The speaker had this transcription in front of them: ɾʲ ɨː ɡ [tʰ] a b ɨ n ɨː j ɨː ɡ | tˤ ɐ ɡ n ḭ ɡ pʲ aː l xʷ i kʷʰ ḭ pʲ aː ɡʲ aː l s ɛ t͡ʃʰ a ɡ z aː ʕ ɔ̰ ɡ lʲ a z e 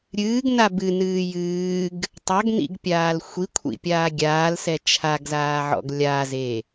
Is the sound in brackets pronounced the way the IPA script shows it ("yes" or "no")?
no